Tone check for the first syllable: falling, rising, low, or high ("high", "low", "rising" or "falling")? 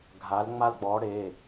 rising